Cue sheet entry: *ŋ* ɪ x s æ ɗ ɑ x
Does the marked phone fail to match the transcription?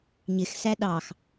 yes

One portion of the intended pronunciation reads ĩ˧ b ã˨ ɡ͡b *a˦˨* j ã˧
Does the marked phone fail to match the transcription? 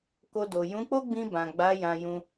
yes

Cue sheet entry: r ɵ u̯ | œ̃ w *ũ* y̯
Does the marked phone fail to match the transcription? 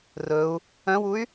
yes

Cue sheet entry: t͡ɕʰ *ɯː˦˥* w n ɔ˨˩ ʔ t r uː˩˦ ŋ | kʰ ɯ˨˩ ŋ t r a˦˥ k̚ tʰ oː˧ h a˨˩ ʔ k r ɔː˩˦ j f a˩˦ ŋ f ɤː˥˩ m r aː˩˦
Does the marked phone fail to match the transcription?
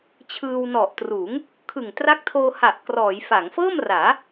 yes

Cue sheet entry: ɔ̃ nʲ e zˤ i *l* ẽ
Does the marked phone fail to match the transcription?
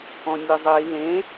no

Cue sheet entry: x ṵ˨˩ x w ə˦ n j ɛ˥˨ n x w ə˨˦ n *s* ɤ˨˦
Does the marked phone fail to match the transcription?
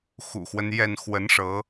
yes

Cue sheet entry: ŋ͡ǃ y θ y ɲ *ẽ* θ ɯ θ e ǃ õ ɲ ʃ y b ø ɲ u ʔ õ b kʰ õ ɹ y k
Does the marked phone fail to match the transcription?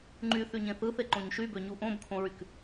no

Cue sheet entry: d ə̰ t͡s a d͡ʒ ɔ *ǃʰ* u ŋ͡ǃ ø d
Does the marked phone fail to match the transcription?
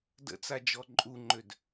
yes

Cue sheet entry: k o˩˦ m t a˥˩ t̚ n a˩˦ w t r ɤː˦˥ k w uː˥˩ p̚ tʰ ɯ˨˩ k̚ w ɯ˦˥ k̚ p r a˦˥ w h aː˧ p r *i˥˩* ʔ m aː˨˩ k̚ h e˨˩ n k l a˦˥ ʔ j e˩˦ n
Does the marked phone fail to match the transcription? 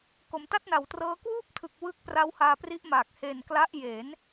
yes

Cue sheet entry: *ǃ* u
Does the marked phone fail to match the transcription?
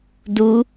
yes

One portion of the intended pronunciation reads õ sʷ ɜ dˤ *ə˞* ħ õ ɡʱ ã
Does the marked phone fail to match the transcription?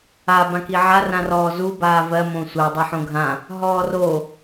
yes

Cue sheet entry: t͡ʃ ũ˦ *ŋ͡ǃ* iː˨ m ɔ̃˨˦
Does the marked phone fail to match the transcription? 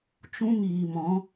yes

